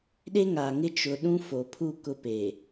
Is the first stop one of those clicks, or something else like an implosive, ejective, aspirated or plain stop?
implosive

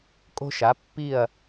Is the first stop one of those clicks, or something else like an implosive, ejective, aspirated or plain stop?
ejective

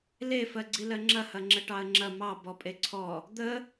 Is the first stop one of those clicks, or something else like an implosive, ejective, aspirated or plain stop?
click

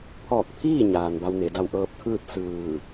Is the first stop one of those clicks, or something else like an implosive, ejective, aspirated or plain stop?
aspirated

